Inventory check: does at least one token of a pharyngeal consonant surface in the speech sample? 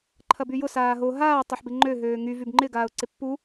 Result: yes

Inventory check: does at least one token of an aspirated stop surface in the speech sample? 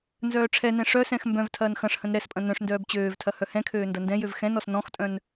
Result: yes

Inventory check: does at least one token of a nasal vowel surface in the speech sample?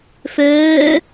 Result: no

